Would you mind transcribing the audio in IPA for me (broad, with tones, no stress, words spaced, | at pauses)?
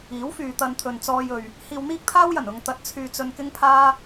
iː˨˥wfyː˨ t̪ɐ˧nt̪ʰɵ˨n t͡sɔː˧jɵ˨ɥ | hiː˧wn̪iː˥k̚t̪ʰaː˥wjɐ˨˩n ʊ˧ŋt̪ɐ˧t̚t͡sʰyː˧t͡sɵ˧n kɪ˥ŋpʰaː˥